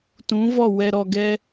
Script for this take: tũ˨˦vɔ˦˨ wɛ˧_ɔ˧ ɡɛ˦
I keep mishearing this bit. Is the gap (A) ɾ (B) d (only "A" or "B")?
A